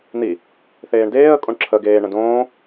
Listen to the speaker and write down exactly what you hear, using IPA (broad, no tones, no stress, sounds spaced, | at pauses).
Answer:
n̪ i | θ eː ɳ d eː ə̯ kʼ õ ɳ ǁʰ ə ɡ eː ɳ ə̃ d õː